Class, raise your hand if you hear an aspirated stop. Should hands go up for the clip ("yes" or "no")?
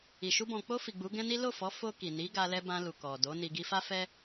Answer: no